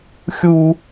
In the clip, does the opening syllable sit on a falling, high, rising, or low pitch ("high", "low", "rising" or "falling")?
high